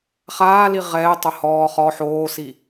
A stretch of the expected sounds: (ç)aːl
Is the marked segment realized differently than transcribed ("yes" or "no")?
yes